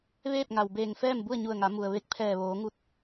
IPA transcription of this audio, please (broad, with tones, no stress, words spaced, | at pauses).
ʋeː˥˨p̚ŋa˩wbeː˧˩ŋfɛː˥˨m bu˥˨ə̯ɲu˧˩ə̯ŋa˩˧ mu˩ə̯ ʋe˧k̚pʰɛː˧˩ʋoː˩˧ŋu˧t̚